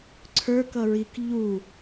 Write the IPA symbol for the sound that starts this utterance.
ǀʰ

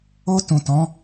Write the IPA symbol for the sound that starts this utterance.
o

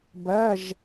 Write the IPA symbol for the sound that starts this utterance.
b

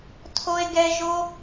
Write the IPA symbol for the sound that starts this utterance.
tʰ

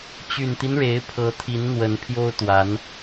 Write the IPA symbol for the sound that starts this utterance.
t͡ɕ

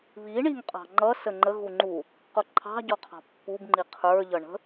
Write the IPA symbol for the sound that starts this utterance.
β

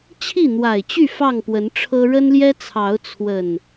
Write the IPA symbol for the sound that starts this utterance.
t͡ɕʰ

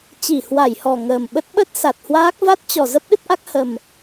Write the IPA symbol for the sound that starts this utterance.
t͡ɕ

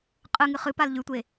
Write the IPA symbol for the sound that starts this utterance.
qʼ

